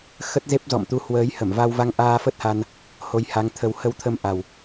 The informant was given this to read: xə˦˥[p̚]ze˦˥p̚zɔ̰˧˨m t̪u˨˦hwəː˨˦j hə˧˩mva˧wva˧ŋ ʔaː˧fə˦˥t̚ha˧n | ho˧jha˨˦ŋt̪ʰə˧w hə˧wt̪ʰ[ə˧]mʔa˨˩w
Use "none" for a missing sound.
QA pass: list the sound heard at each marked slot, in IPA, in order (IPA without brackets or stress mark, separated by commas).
t̚, ə˧